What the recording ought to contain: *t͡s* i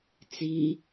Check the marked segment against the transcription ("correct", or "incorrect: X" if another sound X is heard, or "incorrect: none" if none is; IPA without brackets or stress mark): correct